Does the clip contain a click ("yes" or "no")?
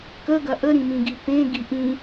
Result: no